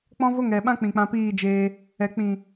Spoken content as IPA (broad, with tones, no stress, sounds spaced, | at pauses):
k͡p ɔ̃˦ v o˦ ŋ ɛ˨ ɓ ã˦ k͡p ĩ˨ k͡p ã˧ p iː˦˨ d͡ʒ eː˧ | ɛ˨ k͡p ĩ˨